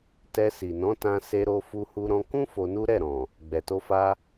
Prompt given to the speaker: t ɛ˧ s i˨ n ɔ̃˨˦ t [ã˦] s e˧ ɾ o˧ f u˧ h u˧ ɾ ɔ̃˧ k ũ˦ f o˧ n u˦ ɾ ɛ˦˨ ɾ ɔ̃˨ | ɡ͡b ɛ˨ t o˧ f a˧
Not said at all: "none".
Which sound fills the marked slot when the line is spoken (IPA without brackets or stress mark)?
ã˧